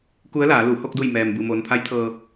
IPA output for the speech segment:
k u˧˥ ə̯ l aː˩˧ l u˧˩ h o˥˨ k̚ d u˧˩ j m ɛː˩ m b ɯː˩ m oː˩ n pʰ a˧˥ j t̪ʰ ɤː˧

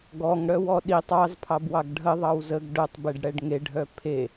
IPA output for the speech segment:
ɡ ɔ ŋ ɽ œ w ɔ ɗ i tˤ ɑ z pʰ ɑ b w ɑ ɡ ɖʱ ə ðˤ ɑ w z ə ɡ ɖ œ tˤ b e ɖ ɽ ɛ ɖ ŋ e ɖʱ œ pʰ e

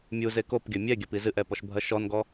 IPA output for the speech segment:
mʲ u z e k o p ɡʲ ɐ mʲ ɛ ɡʲ ɐ p i z ɨ ʔ ɛ p ɔ ʃ bʱ ɐ ʃ ɔ n ɡ ɔ

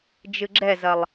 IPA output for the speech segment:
d͡ʒ ɨ ɡ͡ǁ ɛ z ɐ lˠ

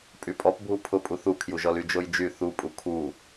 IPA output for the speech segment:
pʼ y pʼ ɔ p bʱ u pʰ ʊ pʼ u θ u kʰ j u ʒ ɔ l y d͡ʒ o j d͡ʒ y θ u pʼ u kʰ u

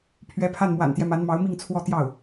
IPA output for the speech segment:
pʰ ɥ ɛ˧˥ pʰ a˥˩ n m w a̰˨˩ n t̪ j ɛ˦ m a˧˥ n m ɑ˧˥ ʊ̯ m i˥˧ ŋ t͡sʰ w ɔ˥˧ t̪ j ɑ˥˩ ʊ̯

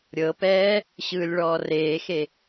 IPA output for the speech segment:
ɾʲ ɤ p ɛː | ɕ ɯː lʲ ɭ ɔː r eː x e

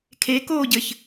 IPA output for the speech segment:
kʰ e k oː ɟ ɘ ç

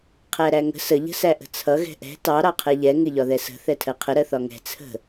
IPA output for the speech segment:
qʰ æ ɾ æ ŋ ə̤ s ə ʎ ə̤ s æ ʔ ə̤ t͡sʰ ʌ ɣ ɛ̤ ʔ ɛ̤ t ɑ ɾ ɑ qʰ ɛ ʎ ɛ ŋ ɪ ʎ ɒ ð ɛ s ə̤ θ ɛ tʰ ɜ qʰ ə ɾ ɜ θ ɒ ŋ ɛ̤ t͡sʰ ə̤

